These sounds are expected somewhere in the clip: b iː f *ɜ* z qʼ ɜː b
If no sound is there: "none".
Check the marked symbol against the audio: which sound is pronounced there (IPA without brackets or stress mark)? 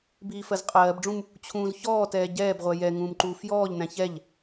ɜ